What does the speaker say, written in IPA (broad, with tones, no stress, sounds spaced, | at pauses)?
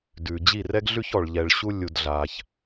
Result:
d ʉ˨ d͡ʑ i˦˨ r ɛ˦ ɡ ɮ ʉ˦ ç ɔ˧ ɭ ʎ ɛ˧ ɭ ɕ u˦ lʲ u˧ d ɮ a˧ ç